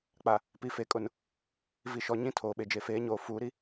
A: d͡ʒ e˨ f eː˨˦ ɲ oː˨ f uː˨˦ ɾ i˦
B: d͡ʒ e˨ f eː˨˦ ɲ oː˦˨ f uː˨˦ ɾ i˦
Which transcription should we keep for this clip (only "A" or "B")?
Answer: A